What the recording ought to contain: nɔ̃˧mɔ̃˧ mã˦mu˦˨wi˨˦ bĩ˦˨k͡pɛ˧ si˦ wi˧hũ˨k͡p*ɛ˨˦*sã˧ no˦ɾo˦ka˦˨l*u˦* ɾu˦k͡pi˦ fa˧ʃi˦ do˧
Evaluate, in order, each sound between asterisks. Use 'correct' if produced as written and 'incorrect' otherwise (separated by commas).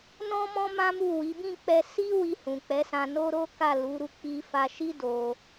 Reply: correct, incorrect